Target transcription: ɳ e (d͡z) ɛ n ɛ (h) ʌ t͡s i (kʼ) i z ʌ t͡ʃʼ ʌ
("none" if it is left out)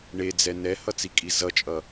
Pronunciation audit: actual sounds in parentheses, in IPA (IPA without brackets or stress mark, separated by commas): d͡z, h, kʼ